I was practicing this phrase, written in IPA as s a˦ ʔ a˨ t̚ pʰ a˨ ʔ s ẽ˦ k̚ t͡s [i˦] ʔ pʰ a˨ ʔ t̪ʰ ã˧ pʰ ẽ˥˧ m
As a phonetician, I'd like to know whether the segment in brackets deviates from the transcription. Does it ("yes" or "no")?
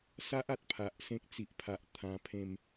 yes